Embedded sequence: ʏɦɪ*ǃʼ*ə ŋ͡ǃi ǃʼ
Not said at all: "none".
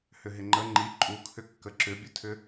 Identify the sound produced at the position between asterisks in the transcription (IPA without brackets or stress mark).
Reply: ŋ͡ǃ